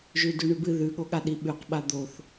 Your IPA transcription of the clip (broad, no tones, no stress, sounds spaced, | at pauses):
ʒ ʉ d ʉ ɳ ʉ b ɨ ð ʉ ɠ o ɠ a ɗ i ɓ ʉ q ɓ a d̪ o θ